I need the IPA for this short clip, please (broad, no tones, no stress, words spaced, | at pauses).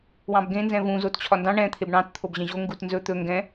wɑ̃bɡẽ nzɛ̃vũ zott͡ɕʰɒndɑ̃ ɳɛ̃ t̪ʰebɳɑ̃t t̪ʰobʑɛ̃ʑo ŋɡutnzɵ t̪ɵ ŋɡɛ̃